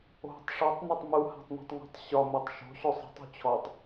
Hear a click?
no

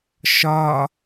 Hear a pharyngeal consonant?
no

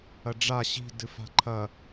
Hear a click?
yes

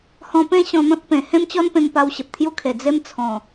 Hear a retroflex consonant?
no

